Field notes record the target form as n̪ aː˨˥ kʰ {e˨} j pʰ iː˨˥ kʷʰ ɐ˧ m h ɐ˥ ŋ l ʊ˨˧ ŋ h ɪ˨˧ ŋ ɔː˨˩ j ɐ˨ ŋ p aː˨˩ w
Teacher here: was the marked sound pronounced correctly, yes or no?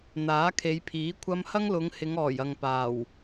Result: no